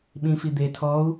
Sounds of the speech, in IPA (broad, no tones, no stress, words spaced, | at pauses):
ɓĩfi d̪e tʰɔu̯